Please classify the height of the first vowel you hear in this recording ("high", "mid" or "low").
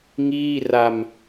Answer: high